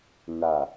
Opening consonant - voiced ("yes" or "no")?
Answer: yes